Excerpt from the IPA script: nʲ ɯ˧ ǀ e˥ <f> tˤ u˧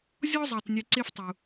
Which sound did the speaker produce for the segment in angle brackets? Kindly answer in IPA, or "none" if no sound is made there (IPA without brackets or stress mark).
f